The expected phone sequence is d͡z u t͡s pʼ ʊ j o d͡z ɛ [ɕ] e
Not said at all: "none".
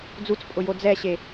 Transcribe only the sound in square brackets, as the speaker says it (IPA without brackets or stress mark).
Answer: ɕ